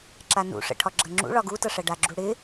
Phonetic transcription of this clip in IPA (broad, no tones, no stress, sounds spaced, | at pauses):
ǁ a n ṵ ʂ ə̰ ʈʰ ɒ ɡ͡ǁ ɐ ŋ͡ǁ ṵ ɭ ɒ ɡ u t ɐ ʂ ɐ ɖ a ɡ͡ǁ u ɽ ɪ